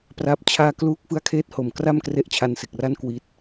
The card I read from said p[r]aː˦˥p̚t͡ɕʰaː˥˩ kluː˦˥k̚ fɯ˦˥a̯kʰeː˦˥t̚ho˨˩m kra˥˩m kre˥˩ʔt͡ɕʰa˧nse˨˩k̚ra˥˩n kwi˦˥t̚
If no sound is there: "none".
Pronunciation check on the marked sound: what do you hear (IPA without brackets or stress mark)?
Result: r